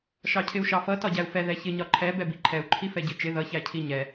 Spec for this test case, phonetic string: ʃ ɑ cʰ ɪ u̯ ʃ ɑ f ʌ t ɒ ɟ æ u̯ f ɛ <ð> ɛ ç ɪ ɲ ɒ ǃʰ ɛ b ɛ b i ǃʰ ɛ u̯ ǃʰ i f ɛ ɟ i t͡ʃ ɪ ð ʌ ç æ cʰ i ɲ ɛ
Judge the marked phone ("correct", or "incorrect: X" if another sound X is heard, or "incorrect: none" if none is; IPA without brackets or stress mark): correct